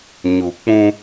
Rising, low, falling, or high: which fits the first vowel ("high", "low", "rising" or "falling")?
low